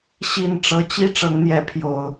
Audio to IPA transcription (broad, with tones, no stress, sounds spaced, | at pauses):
ɕ i˥˨ n ʈ͡ʂ ɤ˨˦ t͡ɕ i˦ ʈ͡ʂ ɤ˨˦ ŋ n̪ j ɛ˨˦ pʰ j o˨˩ ʊ̯